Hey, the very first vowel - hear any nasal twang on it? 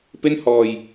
no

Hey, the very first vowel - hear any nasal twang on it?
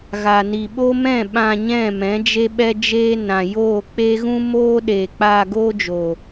no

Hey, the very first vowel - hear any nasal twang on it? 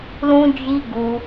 yes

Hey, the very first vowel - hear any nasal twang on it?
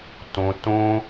yes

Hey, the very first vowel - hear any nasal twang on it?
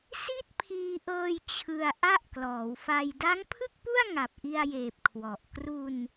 no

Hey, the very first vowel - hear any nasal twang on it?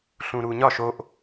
yes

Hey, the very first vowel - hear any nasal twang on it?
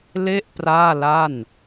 no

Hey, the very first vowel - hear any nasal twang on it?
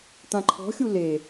yes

